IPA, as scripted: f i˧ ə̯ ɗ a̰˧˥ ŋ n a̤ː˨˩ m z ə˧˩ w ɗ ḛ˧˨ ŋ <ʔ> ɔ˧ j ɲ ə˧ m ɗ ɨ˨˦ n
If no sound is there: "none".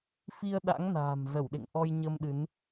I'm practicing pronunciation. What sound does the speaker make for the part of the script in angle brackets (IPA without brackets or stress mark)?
ʔ